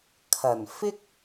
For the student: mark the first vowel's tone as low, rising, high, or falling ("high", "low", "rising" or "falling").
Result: low